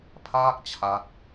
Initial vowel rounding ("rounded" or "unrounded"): unrounded